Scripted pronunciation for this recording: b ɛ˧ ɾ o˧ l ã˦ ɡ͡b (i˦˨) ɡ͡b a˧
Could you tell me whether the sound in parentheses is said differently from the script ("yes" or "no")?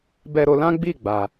no